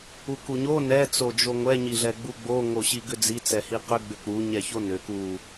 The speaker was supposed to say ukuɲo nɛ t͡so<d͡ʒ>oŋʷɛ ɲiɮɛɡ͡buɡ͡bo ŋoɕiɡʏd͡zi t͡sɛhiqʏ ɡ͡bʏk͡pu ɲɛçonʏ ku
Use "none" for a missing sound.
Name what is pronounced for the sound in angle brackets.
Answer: d͡ʒ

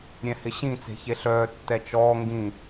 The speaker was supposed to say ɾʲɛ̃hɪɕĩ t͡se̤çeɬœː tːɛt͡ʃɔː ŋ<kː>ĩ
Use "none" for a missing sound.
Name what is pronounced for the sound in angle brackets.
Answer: ɡ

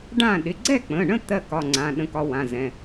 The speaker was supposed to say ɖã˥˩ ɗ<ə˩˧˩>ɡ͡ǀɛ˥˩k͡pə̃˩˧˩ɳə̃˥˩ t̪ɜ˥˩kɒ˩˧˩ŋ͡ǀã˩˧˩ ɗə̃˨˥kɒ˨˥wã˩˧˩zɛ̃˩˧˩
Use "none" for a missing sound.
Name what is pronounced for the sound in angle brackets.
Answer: ɪ˩˧˩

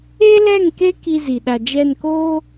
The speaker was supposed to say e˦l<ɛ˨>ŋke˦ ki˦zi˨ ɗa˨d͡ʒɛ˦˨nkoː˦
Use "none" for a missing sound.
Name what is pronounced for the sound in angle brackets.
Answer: ɛ˦˨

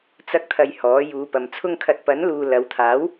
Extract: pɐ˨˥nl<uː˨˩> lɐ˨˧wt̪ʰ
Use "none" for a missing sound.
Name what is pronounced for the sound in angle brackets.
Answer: uː˨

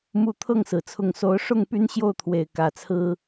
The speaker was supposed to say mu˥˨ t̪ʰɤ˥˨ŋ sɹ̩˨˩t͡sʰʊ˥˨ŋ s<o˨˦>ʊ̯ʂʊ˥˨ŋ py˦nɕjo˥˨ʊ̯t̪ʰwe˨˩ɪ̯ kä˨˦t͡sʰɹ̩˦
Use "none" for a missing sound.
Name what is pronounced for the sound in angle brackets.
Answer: o˨˦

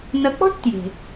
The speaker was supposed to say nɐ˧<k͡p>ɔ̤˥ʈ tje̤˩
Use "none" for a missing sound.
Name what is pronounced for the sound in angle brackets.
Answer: k͡p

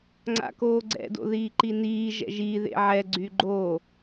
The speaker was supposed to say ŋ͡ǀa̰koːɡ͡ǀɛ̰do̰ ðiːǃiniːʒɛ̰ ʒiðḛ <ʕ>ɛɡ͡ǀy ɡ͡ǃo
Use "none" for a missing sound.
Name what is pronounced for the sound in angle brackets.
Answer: ʕ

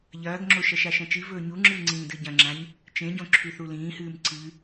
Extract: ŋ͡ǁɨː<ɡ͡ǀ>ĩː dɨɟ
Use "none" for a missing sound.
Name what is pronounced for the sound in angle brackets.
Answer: ŋ͡ǀ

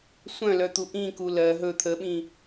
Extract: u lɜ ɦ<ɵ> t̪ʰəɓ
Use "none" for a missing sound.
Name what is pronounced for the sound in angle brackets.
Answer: ɵ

